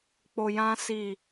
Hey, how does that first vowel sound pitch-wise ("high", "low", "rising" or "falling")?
low